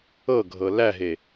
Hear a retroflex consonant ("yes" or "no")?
no